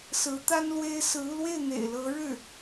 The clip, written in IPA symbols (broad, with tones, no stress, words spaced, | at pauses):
sɹ̩˧˥t̪a˥n lwe˥ɪ̯ sɹ̩˧˥u˧lwe˥˩ɪ̯ n̪ḛ˨˩ɪ̯lɤ˧˥ ɻɻ̩˥˩